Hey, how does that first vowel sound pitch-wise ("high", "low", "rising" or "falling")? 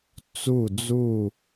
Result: falling